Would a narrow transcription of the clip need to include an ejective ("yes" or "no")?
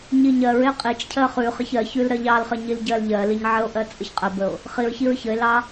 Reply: yes